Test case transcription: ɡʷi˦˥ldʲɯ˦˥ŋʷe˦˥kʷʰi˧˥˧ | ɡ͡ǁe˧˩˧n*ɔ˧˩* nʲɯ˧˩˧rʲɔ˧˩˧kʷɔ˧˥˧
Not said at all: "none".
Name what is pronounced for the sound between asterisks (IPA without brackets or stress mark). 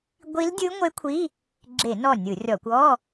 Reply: ɔ˧˩